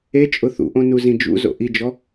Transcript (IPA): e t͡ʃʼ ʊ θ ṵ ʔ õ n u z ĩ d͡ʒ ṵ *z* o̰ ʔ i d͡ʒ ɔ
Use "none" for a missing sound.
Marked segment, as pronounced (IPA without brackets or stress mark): z